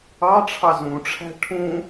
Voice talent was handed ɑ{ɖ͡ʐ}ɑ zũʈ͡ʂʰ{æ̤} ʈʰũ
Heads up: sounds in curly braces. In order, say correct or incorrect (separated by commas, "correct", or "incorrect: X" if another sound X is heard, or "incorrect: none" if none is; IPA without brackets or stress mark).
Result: incorrect: ʈ͡ʂʰ, correct